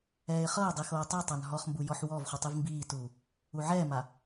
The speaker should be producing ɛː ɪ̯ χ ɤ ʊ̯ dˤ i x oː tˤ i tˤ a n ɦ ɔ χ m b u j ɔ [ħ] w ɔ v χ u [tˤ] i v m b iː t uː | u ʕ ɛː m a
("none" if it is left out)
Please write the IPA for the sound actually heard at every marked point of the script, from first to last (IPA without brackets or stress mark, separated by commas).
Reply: ħ, tˤ